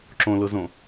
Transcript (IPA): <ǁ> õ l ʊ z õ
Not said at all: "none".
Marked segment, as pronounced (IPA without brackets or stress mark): ǁ